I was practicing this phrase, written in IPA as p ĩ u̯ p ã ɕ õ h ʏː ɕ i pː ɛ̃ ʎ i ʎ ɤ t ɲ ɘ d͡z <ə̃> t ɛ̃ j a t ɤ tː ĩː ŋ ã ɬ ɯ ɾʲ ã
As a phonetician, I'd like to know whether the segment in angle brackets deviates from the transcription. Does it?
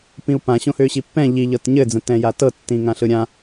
no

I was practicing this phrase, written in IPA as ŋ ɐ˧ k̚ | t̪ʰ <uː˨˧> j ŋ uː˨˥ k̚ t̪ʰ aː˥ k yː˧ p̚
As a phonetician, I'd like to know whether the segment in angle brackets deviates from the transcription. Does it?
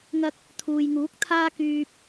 yes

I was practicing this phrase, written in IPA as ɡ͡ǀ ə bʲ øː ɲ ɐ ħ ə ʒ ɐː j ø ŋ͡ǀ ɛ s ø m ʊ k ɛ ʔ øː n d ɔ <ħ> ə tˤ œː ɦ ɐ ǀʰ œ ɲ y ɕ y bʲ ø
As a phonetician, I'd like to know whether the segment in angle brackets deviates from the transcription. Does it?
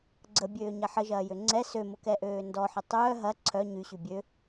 no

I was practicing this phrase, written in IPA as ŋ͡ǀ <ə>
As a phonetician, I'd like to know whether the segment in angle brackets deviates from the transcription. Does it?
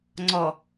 yes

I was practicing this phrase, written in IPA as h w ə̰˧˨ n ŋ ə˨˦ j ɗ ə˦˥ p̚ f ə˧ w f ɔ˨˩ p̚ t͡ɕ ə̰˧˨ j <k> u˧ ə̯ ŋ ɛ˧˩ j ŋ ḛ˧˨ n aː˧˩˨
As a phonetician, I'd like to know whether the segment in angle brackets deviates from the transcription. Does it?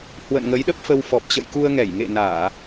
no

